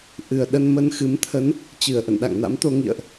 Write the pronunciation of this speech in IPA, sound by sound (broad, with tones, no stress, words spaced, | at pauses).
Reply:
ʔɨ˨˩ə̯ɗə˧n mə˧nxɨ˨˦m t̪ʰə˨˦n | t͡ɕɨ˧˩ə̯ʔə̰˧˨n ɗa̰˧˨ŋna̰˧˥mt̪o˧ ŋḭ˧˨ə̯ʔ